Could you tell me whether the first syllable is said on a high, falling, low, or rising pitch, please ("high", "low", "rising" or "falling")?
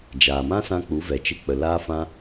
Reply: low